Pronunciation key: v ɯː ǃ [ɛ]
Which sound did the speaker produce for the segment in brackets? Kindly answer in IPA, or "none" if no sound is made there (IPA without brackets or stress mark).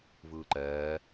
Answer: ɛː